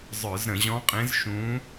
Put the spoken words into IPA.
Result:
zˤ ə˞˧˩˧ z ɾ ə̃˧˩˧ ʑ ɔ̃˧˥ qʼ ẽ˧˥ z ʃ ũ˧˥

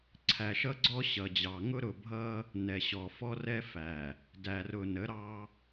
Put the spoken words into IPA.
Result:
ǀʰ æ˨ ʃ ʌ˦ ɡ͡ǀ ɔ˦ ɕ ʌ˨ d͡ʑ ɑ˨ ŋ ʊ˦ ɾ ʊ˦˨ bʱ ʌ˦ | n ɛ˨ ɕ ɔ˨ f ɔ˦ r ɛ˦ f æ˨ | d æ˨ r ʊ˨ n ə˨˦ ɾ ɑ˦

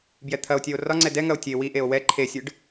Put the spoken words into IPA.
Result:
b j ɛ t̪ʰ ɐ o̯ tʲ ɛ o̯ r ɒ ŋ͡ǀ ɛ d ɛ ŋ ɐ o̯ tʲ e w i ʔ e o̯ w ɛ ǃʰ e sʲ ɨ ɖ

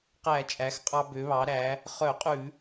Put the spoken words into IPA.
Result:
q æ˧˩˧ t͡ʃʼ æ˩˧ x qʼ ɑ˧ b ø˩˧ β ɑ˩˧ ɾ æ˩˧ | χ œ˧˩˧ qʼ ʉ˧˩˧

